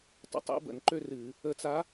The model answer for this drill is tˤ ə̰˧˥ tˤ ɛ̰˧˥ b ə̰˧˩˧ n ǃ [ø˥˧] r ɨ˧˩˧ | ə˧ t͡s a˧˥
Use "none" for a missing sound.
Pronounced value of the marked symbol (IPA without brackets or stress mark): ø˥˧